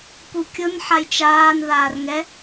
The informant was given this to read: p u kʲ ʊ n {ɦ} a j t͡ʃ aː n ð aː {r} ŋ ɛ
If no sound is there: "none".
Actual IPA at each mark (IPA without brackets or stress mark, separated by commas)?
ħ, r